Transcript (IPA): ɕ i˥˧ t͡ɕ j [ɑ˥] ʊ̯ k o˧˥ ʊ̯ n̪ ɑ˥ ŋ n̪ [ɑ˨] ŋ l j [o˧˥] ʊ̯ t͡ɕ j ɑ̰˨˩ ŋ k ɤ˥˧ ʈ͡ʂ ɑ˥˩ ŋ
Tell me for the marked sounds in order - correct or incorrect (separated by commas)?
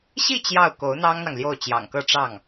incorrect, correct, incorrect